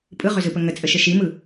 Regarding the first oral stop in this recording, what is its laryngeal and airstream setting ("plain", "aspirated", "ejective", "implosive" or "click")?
ejective